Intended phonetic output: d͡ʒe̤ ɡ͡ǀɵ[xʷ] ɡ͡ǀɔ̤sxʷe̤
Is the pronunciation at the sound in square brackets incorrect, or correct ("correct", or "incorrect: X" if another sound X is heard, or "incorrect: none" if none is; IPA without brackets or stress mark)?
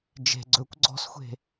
incorrect: kʷ